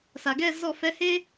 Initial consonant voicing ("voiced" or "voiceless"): voiceless